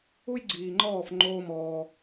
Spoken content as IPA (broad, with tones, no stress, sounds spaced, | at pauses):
u˦ j ɡ͡ǀ iː˨ ŋ͡ǃ ɔː˦˨ f ŋ͡ǃ oː˦ m ɔː˧